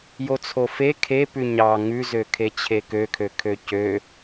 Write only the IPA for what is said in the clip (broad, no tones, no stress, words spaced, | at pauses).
jot͡sʰofe kʰepʉ ɲɑ ŋʉzø kʰet͡ɕʰekøkʰø kʰøcø